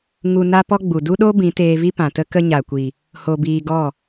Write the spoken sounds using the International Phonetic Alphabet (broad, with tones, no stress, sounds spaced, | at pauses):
ŋ u˧ n a˦ p ɔ˦ ɡ͡b u˨ d u˦ ɗ o˦ b ĩ˨˦ t eː˧ v i˦ p ã˨ t ə˦ k ə˦ ɲ a˨ kʷ i˨ | h o˧ b iː˧ ɡ ɔ˦˨